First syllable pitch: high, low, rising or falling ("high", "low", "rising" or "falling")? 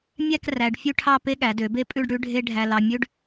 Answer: falling